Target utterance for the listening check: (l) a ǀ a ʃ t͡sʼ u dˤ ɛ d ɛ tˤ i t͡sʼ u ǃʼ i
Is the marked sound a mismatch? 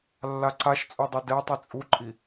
yes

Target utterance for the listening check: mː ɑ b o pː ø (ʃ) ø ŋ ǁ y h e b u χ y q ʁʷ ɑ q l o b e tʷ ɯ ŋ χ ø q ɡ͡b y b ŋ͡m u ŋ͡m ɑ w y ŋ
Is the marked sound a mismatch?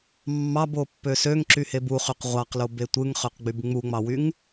yes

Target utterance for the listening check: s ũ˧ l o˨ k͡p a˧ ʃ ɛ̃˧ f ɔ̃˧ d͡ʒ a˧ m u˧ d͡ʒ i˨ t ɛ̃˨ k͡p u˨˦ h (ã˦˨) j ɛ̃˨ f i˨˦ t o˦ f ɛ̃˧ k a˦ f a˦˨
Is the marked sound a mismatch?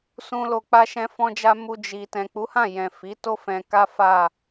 no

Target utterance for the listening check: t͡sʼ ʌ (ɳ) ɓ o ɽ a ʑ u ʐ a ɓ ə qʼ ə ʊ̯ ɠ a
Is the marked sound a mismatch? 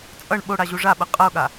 no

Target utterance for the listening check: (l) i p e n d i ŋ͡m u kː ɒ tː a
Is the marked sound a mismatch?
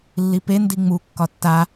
yes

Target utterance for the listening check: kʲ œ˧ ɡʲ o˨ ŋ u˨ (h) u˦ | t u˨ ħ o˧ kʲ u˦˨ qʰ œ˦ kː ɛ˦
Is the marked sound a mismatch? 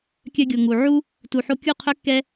yes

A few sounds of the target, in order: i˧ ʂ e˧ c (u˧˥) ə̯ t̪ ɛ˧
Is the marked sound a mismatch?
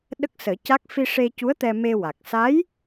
no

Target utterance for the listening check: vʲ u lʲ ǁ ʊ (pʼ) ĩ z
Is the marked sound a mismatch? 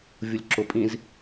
no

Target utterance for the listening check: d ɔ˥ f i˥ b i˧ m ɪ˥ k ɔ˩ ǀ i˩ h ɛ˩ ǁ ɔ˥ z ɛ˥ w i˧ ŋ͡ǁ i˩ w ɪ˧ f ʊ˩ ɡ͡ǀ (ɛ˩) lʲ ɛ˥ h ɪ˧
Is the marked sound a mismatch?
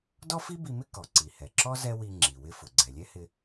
no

